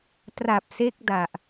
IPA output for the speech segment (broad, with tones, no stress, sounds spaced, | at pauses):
t r a˨˩ p̚ s e˦˥ k̚ d a˨˩ ʔ